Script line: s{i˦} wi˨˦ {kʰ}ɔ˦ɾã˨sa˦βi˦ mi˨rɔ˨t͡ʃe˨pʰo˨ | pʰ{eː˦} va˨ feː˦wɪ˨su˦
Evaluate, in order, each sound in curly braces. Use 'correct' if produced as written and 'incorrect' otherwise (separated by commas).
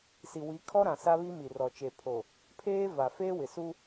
incorrect, correct, correct